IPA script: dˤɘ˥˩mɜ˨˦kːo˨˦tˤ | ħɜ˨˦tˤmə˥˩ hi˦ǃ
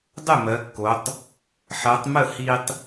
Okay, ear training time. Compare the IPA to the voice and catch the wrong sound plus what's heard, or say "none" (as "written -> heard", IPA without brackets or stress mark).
ǃ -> tˤ